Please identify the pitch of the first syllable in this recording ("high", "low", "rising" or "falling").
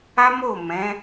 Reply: high